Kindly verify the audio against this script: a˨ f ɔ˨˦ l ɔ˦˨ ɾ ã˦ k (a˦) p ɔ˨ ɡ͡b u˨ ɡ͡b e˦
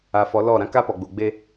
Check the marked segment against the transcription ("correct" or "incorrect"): correct